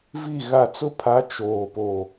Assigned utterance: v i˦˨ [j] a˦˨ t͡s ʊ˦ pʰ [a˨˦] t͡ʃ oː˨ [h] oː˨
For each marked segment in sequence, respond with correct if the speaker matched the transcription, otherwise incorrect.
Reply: incorrect: ɣ, correct, incorrect: p

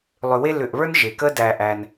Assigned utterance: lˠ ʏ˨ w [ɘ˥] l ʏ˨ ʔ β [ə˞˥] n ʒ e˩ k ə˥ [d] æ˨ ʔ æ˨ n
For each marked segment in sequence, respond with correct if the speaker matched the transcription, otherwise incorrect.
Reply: incorrect: e˥, correct, correct

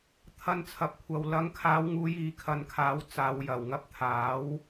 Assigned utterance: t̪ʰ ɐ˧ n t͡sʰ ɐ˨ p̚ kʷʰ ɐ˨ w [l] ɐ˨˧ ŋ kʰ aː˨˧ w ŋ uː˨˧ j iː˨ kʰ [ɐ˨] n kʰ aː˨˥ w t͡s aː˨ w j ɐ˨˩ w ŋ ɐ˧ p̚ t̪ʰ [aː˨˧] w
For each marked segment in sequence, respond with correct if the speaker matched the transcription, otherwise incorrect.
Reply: correct, correct, incorrect: aː˨˥

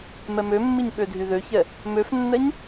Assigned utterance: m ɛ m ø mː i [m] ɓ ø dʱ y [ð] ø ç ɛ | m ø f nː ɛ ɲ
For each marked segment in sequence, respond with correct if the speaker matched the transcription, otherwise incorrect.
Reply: incorrect: ɲ, correct

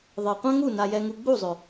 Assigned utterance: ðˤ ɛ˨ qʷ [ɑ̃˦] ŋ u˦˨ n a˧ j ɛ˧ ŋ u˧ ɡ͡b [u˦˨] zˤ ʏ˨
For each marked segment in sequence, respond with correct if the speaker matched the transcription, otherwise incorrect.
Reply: incorrect: ã˦, correct

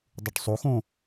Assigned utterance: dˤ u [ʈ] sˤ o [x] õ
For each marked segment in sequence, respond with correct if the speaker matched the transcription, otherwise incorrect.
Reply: correct, correct

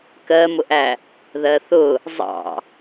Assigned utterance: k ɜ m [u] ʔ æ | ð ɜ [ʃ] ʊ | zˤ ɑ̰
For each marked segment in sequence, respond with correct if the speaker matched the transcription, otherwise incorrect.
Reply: incorrect: ʊ, incorrect: θ

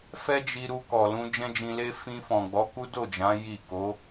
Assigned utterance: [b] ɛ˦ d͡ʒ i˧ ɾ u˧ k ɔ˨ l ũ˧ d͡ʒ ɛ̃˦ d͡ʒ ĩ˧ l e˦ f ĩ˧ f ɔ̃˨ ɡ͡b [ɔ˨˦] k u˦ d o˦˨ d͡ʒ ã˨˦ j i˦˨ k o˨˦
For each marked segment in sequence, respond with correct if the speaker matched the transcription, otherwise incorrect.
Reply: incorrect: f, correct

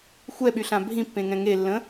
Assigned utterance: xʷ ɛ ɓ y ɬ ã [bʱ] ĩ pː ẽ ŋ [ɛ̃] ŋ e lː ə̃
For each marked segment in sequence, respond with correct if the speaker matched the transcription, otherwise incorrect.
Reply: correct, correct

